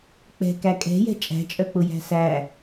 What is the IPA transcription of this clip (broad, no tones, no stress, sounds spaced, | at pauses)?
k͡p ɛ̤ k æ kʼ ɛ̤ j ɛ̤ t͡ʃʼ æ̤ t͡ʃʼ œ k͡p ʊ j æ̤ s æ